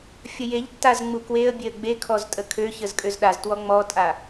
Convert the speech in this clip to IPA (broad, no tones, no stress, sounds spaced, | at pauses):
fʲ ə j e ʎ tː a z ŋ͡m u k w e ə̯ bʲ e ə̯ ɡ͡b e kʰ ɔ z tʼ ə kʰ ø ç ə z kʼ ø z ɗ a z t w ɔ ŋ͡m ɔ tʼ a